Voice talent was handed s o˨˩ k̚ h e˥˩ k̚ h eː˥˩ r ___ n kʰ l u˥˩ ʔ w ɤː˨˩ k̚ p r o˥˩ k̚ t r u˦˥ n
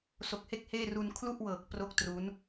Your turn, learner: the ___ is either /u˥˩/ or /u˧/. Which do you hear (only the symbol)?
u˧